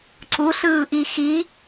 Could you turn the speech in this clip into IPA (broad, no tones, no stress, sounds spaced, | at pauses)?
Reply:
ǀ u ɬ ɯː ʔ i x i